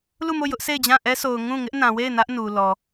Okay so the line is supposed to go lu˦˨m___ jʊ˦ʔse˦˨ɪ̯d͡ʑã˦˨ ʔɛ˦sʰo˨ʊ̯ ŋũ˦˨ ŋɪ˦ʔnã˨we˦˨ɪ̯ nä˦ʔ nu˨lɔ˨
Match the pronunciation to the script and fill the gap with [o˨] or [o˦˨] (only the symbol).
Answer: o˦˨